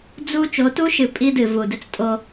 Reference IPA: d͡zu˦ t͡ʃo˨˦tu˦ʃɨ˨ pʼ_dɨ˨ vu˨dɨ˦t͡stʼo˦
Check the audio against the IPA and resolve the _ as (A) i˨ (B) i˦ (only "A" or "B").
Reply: B